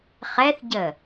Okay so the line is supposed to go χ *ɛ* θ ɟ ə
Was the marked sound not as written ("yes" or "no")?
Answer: no